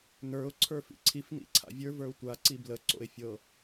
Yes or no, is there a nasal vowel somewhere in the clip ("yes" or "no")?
no